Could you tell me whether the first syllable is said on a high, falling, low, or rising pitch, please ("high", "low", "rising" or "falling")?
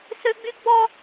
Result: high